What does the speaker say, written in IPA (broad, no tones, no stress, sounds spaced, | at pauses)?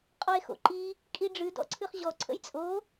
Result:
qʼ ɔ e̯ x o̰ ǃ i | kʼ i ɖ͡ʐ ɨ d ɔ̰ ǀʰ ɨ χ ʑ ɔ ǀʰ ə̰ j t͡sʼ o